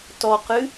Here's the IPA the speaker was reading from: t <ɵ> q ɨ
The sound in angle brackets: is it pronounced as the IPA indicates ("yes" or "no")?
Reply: no